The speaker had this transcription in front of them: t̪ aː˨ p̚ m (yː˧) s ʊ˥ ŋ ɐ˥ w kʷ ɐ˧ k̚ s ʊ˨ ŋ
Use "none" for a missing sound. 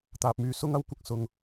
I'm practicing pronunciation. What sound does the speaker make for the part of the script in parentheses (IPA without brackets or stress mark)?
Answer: yː˨˧